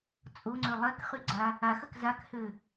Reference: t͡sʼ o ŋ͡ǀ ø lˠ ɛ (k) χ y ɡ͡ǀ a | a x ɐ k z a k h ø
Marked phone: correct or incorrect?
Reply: correct